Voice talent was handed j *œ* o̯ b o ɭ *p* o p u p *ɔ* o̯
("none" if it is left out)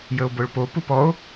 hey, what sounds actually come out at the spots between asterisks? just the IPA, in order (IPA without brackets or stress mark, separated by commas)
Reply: ə, p, ɔ